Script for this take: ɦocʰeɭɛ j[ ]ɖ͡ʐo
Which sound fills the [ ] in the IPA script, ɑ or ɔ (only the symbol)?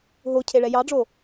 ɑ